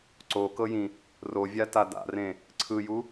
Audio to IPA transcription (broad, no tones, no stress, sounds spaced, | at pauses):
ǀ o k ɤ j ĩ | r o vʲ a t a d a̰ r ẽ | ǀʰ ɯ j u